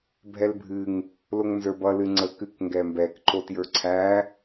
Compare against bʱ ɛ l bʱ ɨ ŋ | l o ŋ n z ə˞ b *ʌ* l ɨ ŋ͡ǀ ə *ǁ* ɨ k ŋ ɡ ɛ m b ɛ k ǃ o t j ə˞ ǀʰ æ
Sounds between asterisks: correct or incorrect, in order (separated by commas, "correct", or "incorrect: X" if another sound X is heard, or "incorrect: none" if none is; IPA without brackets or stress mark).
correct, incorrect: k